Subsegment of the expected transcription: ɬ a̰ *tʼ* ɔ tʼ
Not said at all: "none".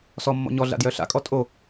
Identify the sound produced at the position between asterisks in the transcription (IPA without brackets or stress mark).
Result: kʼ